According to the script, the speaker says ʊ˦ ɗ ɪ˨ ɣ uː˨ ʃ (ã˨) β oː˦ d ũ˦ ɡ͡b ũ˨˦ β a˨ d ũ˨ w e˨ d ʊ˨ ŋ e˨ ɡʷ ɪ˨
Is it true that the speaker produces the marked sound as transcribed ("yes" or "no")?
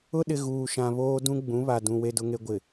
yes